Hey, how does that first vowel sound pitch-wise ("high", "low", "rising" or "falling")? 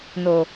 low